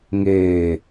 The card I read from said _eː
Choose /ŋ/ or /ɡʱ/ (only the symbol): ŋ